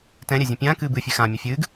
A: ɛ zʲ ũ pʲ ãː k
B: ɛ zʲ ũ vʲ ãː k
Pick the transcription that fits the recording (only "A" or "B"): A